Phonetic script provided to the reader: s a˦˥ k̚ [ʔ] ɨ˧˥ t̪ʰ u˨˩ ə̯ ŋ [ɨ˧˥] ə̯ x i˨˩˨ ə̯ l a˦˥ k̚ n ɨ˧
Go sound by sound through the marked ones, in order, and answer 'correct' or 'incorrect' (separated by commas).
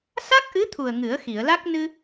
correct, incorrect